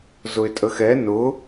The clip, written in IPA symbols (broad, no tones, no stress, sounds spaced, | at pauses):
z ʊ ɪ̯ tʼ ə x ɛ n ʊ